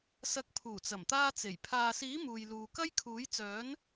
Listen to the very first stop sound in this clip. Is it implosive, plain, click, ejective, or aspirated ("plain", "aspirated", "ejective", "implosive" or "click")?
plain